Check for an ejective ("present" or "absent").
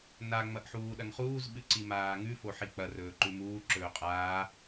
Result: present